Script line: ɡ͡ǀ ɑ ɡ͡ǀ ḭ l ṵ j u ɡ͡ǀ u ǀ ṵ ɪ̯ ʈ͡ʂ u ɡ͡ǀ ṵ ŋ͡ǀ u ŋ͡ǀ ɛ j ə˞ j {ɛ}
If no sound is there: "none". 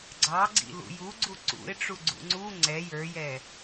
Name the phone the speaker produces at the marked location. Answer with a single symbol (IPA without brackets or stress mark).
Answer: ɛ